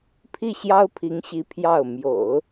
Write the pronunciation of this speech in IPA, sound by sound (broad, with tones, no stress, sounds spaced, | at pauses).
pʰ i˥˩ ɕ j ɑ˥ ʊ̯ pʰ i˧˥ ŋ ɕ i˧˥ pʰ j ɑ˥˩ ʊ̯ m j o̰˨˩˦ ʊ̯